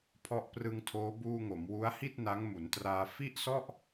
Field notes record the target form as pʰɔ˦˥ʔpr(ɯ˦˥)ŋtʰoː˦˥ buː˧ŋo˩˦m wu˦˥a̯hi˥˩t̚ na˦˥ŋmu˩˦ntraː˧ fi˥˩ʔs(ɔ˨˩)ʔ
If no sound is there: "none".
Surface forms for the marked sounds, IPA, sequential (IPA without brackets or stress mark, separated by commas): ɯ˧, ɔ˥˩